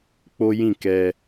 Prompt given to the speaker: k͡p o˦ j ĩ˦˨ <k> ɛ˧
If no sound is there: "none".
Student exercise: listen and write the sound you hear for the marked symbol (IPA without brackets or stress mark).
k